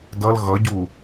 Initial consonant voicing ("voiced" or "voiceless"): voiced